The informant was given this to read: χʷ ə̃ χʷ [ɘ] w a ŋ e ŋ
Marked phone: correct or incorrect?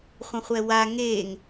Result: incorrect